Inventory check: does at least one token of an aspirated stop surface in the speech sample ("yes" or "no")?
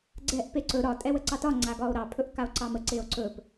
yes